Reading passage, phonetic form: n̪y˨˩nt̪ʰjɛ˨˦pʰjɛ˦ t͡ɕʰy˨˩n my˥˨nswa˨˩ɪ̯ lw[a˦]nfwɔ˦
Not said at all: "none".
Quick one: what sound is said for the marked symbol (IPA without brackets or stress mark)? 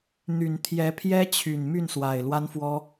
a˦